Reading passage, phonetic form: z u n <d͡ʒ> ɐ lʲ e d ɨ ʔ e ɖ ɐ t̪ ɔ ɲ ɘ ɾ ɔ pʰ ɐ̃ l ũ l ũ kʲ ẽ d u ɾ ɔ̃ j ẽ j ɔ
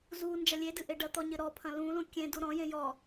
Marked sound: correct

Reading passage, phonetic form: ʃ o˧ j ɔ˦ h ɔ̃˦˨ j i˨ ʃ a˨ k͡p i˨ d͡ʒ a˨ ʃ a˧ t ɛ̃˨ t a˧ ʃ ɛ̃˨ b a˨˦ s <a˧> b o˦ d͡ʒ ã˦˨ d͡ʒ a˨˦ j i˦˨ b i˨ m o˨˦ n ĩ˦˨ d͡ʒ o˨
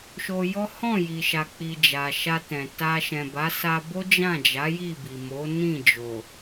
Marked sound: correct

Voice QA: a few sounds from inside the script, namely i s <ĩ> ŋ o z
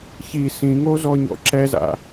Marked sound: correct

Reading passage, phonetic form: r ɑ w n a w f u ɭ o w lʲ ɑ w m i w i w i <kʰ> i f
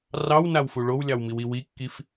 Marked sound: incorrect: kː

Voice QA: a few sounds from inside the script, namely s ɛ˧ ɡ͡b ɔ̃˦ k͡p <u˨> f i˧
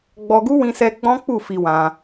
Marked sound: incorrect: u˦˨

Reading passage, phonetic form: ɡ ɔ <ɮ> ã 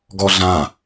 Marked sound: correct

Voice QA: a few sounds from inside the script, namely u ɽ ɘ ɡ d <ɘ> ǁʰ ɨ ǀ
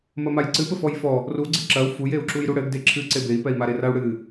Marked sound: incorrect: e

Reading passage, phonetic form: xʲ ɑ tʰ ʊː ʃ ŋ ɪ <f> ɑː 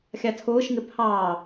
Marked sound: incorrect: pʰ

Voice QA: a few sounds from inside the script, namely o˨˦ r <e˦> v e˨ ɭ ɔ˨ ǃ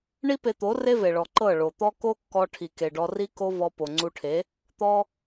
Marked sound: correct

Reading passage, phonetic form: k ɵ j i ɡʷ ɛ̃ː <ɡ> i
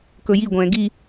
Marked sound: correct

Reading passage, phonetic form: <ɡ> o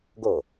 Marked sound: correct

